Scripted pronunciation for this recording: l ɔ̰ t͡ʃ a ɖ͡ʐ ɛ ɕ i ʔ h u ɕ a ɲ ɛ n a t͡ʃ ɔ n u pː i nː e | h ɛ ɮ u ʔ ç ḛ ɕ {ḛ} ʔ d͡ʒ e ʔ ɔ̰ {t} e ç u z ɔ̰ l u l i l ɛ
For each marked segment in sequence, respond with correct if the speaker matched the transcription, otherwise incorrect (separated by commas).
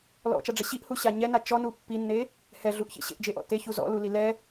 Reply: correct, correct